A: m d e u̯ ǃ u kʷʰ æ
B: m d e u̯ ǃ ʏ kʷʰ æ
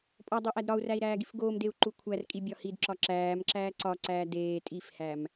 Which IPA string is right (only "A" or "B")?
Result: A